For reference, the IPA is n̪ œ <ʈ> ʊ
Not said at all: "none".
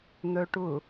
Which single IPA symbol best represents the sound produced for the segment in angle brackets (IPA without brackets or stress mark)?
ʈ